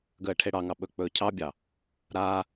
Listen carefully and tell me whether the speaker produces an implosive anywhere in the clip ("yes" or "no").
yes